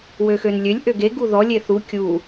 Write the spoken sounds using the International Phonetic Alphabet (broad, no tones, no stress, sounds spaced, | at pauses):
w ø x ø n lʲ ø lʲ ʔ ø ɡ e ɡ u ð ɔ lʲ e θ u kʲ u